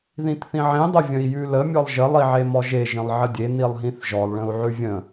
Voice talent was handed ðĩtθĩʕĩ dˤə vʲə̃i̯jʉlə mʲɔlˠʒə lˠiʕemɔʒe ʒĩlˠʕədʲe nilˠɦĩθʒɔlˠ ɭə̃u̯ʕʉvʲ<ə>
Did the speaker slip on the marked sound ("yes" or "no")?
yes